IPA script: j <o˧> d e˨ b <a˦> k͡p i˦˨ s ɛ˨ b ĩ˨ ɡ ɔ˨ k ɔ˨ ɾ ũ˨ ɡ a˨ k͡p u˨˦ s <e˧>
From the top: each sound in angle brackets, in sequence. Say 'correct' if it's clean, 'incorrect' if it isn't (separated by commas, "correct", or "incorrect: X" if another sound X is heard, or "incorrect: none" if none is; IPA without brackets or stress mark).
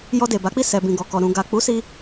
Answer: incorrect: ɔ˧, incorrect: a˨˦, incorrect: i˧